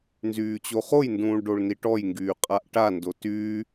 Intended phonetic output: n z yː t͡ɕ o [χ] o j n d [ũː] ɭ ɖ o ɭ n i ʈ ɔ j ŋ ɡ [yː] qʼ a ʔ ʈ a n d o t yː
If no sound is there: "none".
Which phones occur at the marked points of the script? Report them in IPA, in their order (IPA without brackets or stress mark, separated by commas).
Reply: χ, ũː, yː